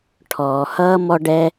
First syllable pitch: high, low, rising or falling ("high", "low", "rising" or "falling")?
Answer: low